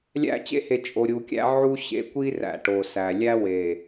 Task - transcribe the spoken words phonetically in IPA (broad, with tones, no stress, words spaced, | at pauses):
lʲæ̰˦ t͡ɕḛ˦he˨ t͡ʃʼo˨ ɾʲu˨kʲæ̰˦ ʕu˦ ɕḛ˦ kʷi˦ ræ̰˨ʈo˨sæ˨ lʲæ˦we˨